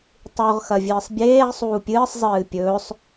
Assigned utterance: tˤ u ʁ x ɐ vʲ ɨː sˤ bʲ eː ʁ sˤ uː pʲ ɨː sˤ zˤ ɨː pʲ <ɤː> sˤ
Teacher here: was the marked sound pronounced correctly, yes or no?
no